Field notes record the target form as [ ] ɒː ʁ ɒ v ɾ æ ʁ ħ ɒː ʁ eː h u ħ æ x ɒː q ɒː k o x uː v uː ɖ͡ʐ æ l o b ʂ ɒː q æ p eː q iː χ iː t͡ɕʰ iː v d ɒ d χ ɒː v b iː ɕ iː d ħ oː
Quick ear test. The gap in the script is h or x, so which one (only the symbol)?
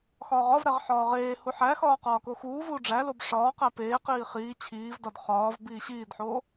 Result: x